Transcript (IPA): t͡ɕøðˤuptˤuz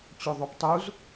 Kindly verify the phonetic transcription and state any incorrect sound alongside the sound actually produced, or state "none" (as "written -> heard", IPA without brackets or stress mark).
none